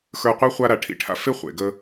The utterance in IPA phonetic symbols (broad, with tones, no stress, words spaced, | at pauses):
xə˞˧qʷə˞˦ χʷa˧ɾa˨ ʈʰḭ˧ʈʰa̰˧fe˦ χʷḛ˨ɡə˧